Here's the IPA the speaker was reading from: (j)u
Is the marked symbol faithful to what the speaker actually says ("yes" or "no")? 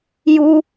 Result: yes